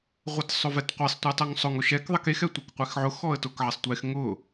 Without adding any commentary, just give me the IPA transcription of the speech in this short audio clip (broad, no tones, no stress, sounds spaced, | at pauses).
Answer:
ʁʷ ɛ t sˤ ʊ v ɛ t qʷ e sˤ tʷ ɛ tˤ ʊ ŋ sˤ ʊ ŋ ʊ ʃ ɛ k ðˤ ɛ k e x ɛ tʷ e k qʷ ɛ x ʕ ʊ x ɔ ə̯ t ʊ k ʕ ɛ sˤ tʷ e x ŋ ʊ